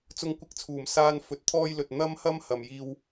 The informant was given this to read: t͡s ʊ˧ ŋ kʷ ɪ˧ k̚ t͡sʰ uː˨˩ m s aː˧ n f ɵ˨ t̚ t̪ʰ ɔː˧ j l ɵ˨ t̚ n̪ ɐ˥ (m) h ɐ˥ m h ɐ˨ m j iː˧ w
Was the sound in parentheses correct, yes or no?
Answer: yes